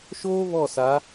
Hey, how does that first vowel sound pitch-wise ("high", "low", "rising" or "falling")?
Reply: high